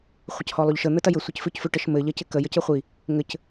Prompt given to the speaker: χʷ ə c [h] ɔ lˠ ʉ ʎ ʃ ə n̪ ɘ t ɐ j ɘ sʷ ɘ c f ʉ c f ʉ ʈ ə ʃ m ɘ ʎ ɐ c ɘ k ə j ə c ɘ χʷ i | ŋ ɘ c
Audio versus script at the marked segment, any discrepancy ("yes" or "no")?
no